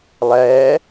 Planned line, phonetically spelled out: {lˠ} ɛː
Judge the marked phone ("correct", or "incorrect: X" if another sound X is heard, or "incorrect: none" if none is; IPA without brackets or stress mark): correct